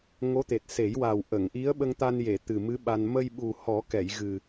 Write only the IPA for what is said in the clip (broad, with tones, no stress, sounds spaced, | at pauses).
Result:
ŋ o˧˥ t̪ e˨˩ t̚ s e˨˩˦ j w a˨˩ w ʔ ə˨˩˨ ŋ ʔ i˧˥ ə̯ ɓ ə˧ ŋ t̪ a˧ n j e˨˩˨ t̪ ɨ˨˩ m ɨ˧˥ ɓ a˧ n m ə˧ j ɓ u˨˩ h ɔ˨˩˦ k ɛ˨˩˨ j ɣ ɨ˨˩